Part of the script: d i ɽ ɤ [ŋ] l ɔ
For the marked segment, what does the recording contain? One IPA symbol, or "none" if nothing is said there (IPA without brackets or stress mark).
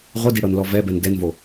n